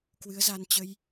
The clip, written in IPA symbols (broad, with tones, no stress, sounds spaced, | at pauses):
k w ɨ˨˦ ə̯ z a˧ n t͡ɕ ə˧ j